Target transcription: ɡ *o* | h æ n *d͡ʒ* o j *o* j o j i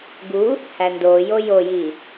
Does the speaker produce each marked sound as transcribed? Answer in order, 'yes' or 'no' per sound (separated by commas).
no, no, yes